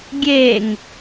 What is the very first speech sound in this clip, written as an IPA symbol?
ɡʲ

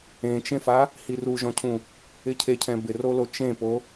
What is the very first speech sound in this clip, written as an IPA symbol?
ẽ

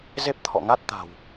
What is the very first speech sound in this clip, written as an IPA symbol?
z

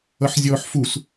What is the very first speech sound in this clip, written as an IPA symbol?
ʌ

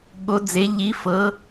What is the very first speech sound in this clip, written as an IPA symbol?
ɠ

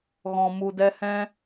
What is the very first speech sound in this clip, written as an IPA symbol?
ɣ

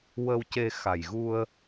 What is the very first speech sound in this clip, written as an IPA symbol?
w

